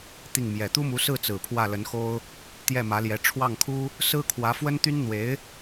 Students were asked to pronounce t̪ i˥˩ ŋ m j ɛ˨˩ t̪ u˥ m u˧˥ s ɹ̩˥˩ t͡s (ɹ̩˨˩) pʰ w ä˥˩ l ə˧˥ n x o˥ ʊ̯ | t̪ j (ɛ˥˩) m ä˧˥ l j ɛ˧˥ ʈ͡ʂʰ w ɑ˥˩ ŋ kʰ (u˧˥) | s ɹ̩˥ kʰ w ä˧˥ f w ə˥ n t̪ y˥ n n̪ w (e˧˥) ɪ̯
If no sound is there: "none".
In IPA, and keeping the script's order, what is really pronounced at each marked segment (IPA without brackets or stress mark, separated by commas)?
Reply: ɹ̩˨˩, ɛ˥˩, u˥, e˧˥